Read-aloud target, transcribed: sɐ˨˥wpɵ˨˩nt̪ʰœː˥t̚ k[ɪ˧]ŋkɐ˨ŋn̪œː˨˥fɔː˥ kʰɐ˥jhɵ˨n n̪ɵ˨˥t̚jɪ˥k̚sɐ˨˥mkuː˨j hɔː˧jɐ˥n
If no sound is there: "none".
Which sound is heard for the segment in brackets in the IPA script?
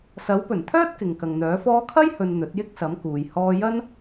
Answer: ɪ˨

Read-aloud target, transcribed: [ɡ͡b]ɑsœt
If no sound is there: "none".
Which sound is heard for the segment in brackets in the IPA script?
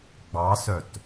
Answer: ɡ͡b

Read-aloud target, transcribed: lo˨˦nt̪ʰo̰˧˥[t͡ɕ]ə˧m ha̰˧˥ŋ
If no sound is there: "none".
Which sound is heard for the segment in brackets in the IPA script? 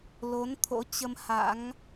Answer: t͡ɕ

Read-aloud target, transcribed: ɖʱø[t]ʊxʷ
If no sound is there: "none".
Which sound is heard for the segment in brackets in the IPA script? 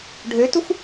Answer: t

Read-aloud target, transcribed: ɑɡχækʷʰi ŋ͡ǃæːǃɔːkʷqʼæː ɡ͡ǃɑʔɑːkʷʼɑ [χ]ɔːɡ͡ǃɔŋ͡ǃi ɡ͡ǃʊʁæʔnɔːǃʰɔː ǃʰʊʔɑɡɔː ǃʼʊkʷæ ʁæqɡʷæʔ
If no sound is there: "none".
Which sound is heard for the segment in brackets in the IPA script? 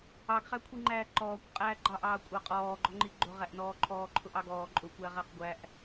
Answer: qʼ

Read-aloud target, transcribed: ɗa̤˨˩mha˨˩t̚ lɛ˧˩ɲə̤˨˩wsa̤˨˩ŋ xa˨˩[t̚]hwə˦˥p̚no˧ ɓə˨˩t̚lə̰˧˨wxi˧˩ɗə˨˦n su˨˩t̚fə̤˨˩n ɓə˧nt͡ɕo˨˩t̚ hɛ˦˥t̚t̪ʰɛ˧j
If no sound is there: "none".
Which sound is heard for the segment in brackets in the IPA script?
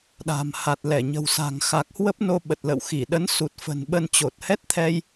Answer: k̚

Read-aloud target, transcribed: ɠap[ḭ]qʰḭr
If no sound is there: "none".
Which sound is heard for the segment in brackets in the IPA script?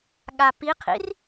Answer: i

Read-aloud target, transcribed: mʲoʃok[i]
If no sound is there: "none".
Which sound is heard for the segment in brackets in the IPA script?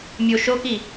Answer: i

